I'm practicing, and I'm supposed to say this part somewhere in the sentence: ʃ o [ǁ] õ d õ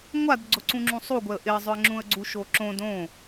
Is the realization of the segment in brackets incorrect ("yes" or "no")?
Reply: no